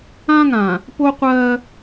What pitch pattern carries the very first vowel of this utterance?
high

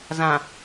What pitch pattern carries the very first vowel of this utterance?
low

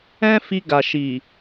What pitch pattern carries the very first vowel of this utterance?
high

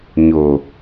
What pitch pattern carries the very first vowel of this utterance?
low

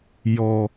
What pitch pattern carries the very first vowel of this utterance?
low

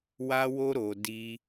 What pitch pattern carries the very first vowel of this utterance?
high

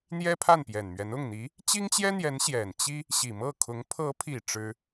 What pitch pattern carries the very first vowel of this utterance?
high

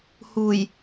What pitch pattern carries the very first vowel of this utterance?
low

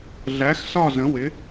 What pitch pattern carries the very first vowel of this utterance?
rising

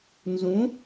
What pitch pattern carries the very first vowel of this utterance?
rising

